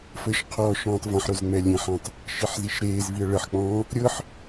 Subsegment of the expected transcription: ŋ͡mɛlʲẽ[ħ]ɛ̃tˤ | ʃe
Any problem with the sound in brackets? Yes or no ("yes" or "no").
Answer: no